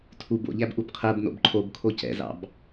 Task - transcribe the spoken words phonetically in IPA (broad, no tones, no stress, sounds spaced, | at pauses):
tʰ u b o̰ ʎ æ b ʔ u b qʰ ɜ b n o̰ b ǃʰ o b kʰ o c ɛ̰ z ɑ̰ b